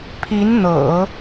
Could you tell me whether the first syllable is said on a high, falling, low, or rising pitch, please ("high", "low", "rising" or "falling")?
rising